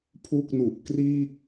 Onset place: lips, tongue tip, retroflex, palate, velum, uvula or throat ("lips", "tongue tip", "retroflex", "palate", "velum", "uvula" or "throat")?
lips